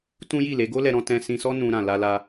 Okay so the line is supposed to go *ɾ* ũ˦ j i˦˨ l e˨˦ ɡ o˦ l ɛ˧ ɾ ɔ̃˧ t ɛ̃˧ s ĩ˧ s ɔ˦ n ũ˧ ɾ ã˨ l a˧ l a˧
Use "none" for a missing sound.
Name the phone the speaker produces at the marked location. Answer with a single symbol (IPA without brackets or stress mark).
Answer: t